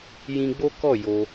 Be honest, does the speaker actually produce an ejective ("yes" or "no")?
no